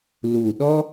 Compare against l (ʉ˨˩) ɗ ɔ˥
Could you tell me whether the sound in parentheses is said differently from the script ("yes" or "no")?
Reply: yes